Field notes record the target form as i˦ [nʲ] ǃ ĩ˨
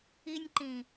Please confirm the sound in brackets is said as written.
yes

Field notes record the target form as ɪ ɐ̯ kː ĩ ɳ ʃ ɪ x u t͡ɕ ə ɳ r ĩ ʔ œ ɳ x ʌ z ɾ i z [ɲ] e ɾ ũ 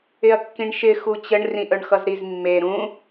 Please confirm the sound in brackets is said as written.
no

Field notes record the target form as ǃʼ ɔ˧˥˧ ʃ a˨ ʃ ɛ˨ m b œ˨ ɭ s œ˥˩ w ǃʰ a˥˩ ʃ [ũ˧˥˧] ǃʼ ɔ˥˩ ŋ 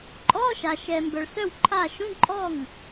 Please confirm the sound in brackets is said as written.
yes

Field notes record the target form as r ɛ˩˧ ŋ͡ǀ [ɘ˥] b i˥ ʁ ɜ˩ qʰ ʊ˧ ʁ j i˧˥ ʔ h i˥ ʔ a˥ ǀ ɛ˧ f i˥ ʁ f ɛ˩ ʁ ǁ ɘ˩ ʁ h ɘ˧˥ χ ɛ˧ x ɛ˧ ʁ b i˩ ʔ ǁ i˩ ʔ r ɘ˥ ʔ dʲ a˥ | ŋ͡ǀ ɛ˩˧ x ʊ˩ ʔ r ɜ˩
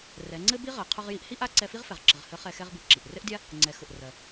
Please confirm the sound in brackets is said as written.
yes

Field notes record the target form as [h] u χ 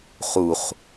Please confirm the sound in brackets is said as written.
no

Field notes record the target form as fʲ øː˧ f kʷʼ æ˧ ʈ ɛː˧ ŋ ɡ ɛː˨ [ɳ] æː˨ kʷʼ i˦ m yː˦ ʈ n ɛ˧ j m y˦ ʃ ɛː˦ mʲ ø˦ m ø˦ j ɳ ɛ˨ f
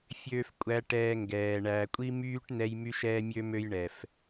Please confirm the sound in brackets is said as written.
yes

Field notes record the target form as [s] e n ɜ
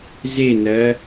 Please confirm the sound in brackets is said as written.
no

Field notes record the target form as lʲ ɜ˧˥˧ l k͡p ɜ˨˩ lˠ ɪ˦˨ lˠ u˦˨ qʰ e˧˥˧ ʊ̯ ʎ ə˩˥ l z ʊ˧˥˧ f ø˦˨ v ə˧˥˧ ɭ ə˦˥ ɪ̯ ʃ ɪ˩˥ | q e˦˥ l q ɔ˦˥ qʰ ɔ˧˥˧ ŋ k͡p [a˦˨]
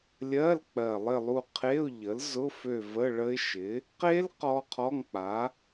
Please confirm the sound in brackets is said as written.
no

